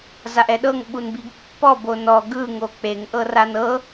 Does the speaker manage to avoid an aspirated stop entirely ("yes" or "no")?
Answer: yes